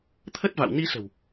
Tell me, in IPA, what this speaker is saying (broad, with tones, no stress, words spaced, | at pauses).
t̪ʰə˦˥t̚va̰˧˨w ni˧sə̤˨˩w